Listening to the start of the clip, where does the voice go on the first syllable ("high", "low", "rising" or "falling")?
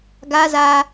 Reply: high